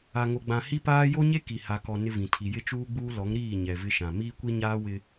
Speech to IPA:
a˨ŋo˨ɡ͡bã˨ hi˦paː˦ jo˦ɲe˦ ki˨ ha˨kɔ˨ nɪ˦vĩ˨tʰi˨ jɪ˦t͡ʃuː˦ɡ͡buː˦ lɔ˨˦ŋɾiː˦˨ ɲɛ˨vɪ˦ʃã˨ miː˦kʷi˦ɲaː˦ wɪ˦

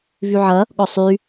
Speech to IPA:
vyʕɐ | ɠɔsˤy

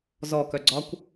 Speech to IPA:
zɔkœɡ͡ǀɒkʷ

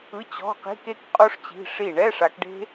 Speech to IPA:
ɯ˧˥˧t͡ɕɔ̤˧˥˧ qi̤˧˥˧ke˦˥kqʼo˦˥ʂ t͡ɕi̤˧˥˧ʂi˥˩ ɳɛ˧˥˧ʂa˨˦kɖe̤˦˥

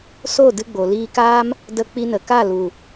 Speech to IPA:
so˦˨ dɨ˧ɡ͡bo˨liː˧kaː˦m | də˧ k͡pi˧nə˨ ka˦˨lu˨

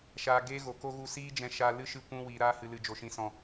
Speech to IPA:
ʃaː˧ ɡeː˦ ɣo˨ko˦ ɣu˧ siː˦d͡ʒɛ̃˧ ʃa˧ lɨ˦ʃɨ˧ kʷũ˧ wiː˨ɾaː˧hɨ˨lɨ˨ d͡ʒo˨ʃĩ˨sɔ̃˨

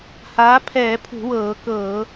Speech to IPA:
haː˨˥pʰɛː˧˩˧pʰṳ˧˩˧wɤː˧˩˧ kɤ˧˩˧

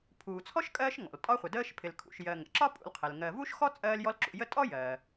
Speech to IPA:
pʰuː˨t͡sʰɔ˥ʃkʼɜː˦ʃŋɔ̰˩l tʼɒ˦χʷə˩dəː˦ʃ pʰɪ˨lkʰṵ˨ʃ jɜ˨ŋə̰˩ ǁɒ˥pʼṵ˨l qʰɪ˩lŋɜ˨ vu˥ʃxɔ˥ t͡sʼɜː˦ljɔ˦lǁṵ˨jə˥ tʼɔ˥jɜː˩

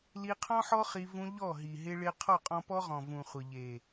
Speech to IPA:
li˧qʰɔ̃˦ħɔ˦ χi˧ vũ˧ ʎɔ˦˨ɦi˨ ɦɪ˧ɭɪ˧ qʰɔ˦˨qʼɔ̃˧ pɔ˦ʁɔ̃˨ vũ˨χʷɪ˨ ʎe˨

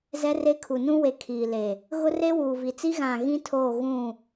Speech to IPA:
zɛ˦re˦kʰu˨ nũ˦we˨ kʰiː˨ le˨ | ɣʊ˦re˦ wuː˨vi˨t͡si˦ ɣã˦˨ ɣĩ˦tʰoː˦˨ ɣũ˦˨

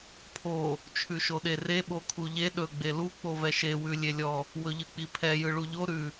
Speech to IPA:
pʰo | t͡ʃʰʉʃoɗere ɓokʰuʎe ɗɵ ɡ͡belu k͡povɛʃe wʉlʲelʲɔ | wɵʎɯk͡pipʰɛ jɯɭuʎo ɾʉ

